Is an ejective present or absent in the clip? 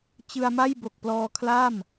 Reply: absent